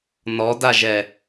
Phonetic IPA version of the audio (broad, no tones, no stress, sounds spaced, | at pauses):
n ɔ d a ʒ ɛ